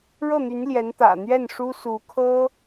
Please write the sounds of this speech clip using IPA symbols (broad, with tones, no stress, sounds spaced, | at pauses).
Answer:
ɻ ɤ˥˩ n̪ y˧˥ n l j ɛ˧˥ n t̪ ä̰˨˩ n̪ ɥ ɛ˥˩ n ʂ u˥ s u˧˥ kʰ ɤ˥